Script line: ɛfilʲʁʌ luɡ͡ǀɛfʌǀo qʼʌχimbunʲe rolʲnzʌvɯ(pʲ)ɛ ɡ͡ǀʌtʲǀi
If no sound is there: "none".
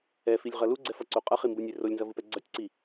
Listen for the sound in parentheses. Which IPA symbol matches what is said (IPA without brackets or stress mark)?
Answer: p